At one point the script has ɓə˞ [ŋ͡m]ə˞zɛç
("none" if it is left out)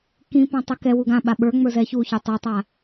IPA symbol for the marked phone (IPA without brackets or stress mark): ŋ͡m